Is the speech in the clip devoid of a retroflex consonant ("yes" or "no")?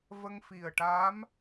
no